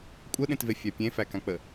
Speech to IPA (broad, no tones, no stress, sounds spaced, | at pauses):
kʷʼ ə ɗ ẽ t v e fʲ æ pʲ ẽ f æ k ã k͡p ə